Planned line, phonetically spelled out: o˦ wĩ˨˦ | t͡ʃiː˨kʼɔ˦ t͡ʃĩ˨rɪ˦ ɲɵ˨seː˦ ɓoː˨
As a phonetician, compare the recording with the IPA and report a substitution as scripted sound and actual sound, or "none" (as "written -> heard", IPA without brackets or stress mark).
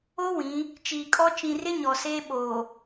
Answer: ɵ˨ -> ɔ˨